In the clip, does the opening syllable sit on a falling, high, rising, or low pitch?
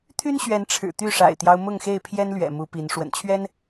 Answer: high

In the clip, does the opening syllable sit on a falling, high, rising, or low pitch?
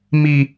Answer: low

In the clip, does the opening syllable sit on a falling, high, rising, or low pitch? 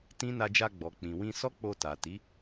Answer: high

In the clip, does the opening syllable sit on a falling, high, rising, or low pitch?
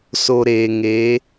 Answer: low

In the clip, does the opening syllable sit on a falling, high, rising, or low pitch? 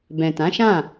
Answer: low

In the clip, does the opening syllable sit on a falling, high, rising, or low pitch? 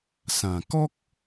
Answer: low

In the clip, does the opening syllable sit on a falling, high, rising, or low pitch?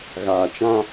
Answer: low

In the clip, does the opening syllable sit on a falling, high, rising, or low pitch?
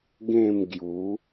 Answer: falling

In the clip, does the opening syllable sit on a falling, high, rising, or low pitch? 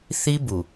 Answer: high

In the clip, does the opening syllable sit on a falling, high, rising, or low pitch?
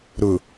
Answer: low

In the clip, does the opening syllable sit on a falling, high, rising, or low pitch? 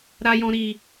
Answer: low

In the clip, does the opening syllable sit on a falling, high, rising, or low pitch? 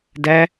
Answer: high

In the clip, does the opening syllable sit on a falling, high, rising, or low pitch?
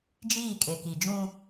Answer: falling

